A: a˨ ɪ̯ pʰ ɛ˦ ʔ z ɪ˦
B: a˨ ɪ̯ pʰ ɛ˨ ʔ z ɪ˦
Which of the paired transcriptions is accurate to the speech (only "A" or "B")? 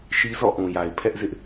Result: A